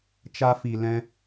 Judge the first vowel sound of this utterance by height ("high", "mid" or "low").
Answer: low